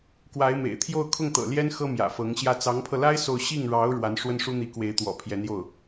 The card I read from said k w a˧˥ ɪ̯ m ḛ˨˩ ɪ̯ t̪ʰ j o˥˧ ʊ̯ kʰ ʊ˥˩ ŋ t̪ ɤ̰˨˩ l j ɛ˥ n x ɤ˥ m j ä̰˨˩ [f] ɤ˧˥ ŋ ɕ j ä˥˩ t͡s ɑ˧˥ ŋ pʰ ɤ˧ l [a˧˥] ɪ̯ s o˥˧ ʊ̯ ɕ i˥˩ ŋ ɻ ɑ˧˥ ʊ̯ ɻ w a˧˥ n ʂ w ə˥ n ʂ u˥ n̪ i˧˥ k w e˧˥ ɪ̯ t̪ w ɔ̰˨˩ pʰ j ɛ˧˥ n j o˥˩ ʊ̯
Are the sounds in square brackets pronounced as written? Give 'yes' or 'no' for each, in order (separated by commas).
yes, no